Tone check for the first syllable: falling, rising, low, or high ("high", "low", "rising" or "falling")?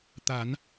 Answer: rising